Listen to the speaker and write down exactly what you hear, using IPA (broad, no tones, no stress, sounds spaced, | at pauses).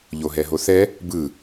ʎ o ɦ ɛ ɦ o θ ɛ | b ɯ